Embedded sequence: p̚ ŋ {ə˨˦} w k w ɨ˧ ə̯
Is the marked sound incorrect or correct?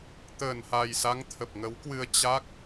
correct